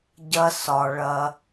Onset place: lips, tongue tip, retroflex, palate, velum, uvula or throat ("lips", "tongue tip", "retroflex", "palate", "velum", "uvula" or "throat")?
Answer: palate